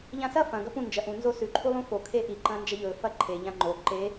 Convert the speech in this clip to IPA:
ʎ ã s ɐ f ɐ̃ ɡ ɐ p ũ n d͡ʒ ɐ ʔ ũ n z o s ʉ ǃʰ u lˠ ũ f o kʰ e ʔ i ǃ ɐ̃ n d͡ʒ ɐ ʎ ɵ f ɐ ǃʰ e ʎ ã ŋ͡ǃ o ǃ e

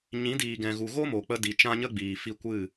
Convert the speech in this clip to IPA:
ɲ ĩ˨˦ d iː˨ ɡ ɛ̃˨ ɣ u˨ ɣ o˦ m o˨ k͡p ə˧ d i˨ t͡ʃ ã˦ ɲ ə˦ ɡ͡b iː˨ f i˦˨ kʷ ɨ˦˨

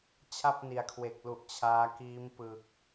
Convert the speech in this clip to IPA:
t͡ɕʰ a˥˩ p̚ n i˨˩ a̯ kʰ w e˨˩ k̚ l u˨˩ ʔ t͡ɕʰ aː˦˥ k iː˦˥ m p ɯ˨˩ k̚

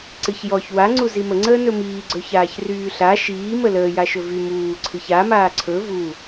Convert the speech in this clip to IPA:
ǀ ɨ ç j ɔ ç w a ŋ͡ǀ u z i m ə ŋ͡ǀ əː n ɵ m iː ɡ͡ǀ ɵ ç aː ç r yː ɬ a ʃ iː m ə l əː j a ʃ ɵ v y m uː ǀʰ ɨ ç a m aː ǀʰ ɵ v u

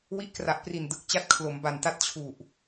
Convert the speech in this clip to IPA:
w i˦˥ ʔ k r a˨˩ ʔ p r i˨˩ n d ɯ˨˩ k̚ t͡ɕ a˥˩ t̚ kʰ l o˩˦ m b a˨˩ n t a˦˥ t̚ t͡ɕʰ u˨˩ ʔ

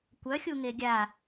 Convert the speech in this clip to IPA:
kʷ œ xʲ u ŋ e ɡʲ a

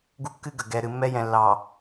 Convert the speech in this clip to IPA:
ɡ u˦ kː ɨ˦ ɡ ə˨ ɡ ɛ˨ ɾ ɨ˨ mː ɛ˦ j ɛ̃˨ lː ɑ˨

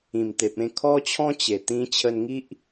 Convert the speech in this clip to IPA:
ĩ˨˩ m t̪ e˨ p̚ ẽ˥˧ kʰ ɔ˦ t͡ɕʰ ɔ̃˦ t͡ɕ e˨˩ t̪ ĩ˧ t͡ɕʰ ə˧ n ŋ i˦ ʔ

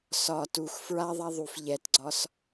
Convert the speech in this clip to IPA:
s ɒ t u x f ɹ a ðˤ a ðˤ u f ʎ ɛ t ɡ͡ǀ ɒ s

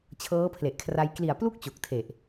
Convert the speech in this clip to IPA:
t͡ɕʰ ɤː˦˥ pʰ l e˨˩ ʔ kʰ r a˧ j k l i˨˩ a̯ p l u˥˩ k̚ t͡ɕ o˨˩ k̚ tʰ e˨˩ ʔ

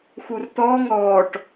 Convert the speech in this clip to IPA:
x u r t̪ ɔː ŋ ɔː ʈ

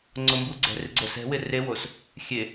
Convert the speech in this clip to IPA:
ŋ͡ǀ o m b u ɡ͡ǀ ɛ̤ r ɪ ɡ͡ǀ o s ɛ̤ w ɪ r e w o s | xʲ e

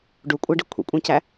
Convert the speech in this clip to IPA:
ɖ u kʷʼ æ ɖ i kʷʰ ḭ kʷʼ æ̃ c æ

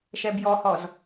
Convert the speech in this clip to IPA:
ʃ ɛ b j ɔ h ɔ z

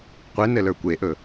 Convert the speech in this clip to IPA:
qʷ e n ɘ l ə˞ kʷ e ʔ ɵ

